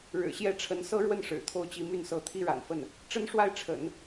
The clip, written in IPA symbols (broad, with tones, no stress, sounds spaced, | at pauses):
ɻ ɻ̩˨˩ ɕ j ɛ˥ ʈ͡ʂʰ ə˧˥ n s ɤ˥ ɻ w ə˥˩ n ʂ ɻ̩˨˩ t̪ʰ o˥˩ ʊ̯ t͡ɕ i˧˥ m y˥˩ n s ɤ˧˥ t̪ʰ i˥ ɻ a̰˨˩ n f ə˥˩ n | ʈ͡ʂ ə˥ n ʂ w a˥˩ ɪ̯ ʈ͡ʂʰ ə̰˨˩˦ n